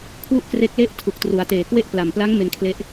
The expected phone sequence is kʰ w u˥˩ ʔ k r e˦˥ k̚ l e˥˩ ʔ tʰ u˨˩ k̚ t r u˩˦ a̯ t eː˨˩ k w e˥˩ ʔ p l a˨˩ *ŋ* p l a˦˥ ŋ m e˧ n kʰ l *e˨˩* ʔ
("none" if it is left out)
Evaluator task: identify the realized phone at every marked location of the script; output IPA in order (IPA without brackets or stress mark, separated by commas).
m, e˦˥